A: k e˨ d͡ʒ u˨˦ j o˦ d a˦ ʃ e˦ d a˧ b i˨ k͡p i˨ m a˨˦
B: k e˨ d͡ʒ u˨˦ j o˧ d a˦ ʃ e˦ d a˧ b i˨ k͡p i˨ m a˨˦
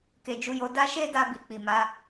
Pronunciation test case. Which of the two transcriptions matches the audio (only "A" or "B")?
B